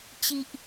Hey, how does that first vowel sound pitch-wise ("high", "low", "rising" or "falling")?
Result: high